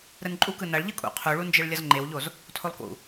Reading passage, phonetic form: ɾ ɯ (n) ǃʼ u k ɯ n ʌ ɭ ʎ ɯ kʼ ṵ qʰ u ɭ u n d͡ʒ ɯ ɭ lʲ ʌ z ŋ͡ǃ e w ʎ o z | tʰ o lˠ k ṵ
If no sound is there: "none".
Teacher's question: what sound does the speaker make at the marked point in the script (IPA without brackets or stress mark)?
n